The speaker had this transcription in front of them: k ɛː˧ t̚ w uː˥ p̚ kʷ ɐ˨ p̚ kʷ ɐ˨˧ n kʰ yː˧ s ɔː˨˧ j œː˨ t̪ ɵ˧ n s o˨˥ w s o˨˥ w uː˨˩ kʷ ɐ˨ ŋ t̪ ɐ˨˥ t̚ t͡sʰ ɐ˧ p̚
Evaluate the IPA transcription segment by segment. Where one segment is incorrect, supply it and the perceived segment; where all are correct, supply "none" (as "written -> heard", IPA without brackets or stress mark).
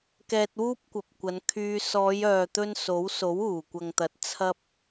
none